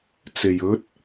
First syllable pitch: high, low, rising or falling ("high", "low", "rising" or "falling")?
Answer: low